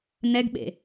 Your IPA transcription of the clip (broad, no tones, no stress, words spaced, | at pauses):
nɛɡɓḛ